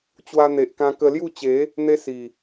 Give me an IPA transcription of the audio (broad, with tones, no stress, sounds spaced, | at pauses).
t͡ɕ w a˧ n̪ e˨ ʔ k ã˧ k ə˧ l j u˥˧ t͡ɕ e˨˦ | n̪ e˦ s i˨˩